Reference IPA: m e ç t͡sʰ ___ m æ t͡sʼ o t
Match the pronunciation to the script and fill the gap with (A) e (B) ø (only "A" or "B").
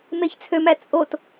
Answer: B